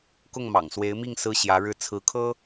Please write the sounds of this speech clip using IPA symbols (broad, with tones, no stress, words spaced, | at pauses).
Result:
kʊ˥˩ŋmɑ̰˨˩ŋswe˧˥ɪ̯mi˥˩ŋ sɹ̩˥ɕjä˧˥ɻɻ̩˥˩ t͡sʰɹ̩˧˥kʰɤ˥